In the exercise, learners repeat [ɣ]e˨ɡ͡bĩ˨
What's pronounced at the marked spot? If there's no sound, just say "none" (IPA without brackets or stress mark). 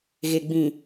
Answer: ɣ